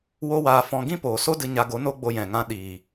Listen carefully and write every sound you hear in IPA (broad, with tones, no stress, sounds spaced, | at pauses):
w o˦ w aː˧ f ɔ̃˧ ɡ ĩ˦ p oː˨ s o˦ d ɨ˧ ɲ a˧ ɡ o˨˦ n o˦ ɡ͡b o˧ j ɛ̃˨ ŋ ã˧ ɗ iː˨